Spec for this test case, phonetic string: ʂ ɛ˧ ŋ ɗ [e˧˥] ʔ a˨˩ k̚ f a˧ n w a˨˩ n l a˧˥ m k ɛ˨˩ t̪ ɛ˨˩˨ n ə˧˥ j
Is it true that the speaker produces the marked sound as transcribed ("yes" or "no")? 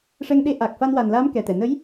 yes